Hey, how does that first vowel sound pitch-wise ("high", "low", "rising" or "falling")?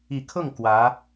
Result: low